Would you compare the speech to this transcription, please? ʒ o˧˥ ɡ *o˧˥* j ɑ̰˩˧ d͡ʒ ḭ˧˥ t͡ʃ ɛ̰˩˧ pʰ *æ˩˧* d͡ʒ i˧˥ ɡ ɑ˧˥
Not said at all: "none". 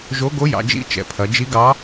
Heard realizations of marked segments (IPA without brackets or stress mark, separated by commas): o˧˥, ɐ˩˧